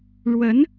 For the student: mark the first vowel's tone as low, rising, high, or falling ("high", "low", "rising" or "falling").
rising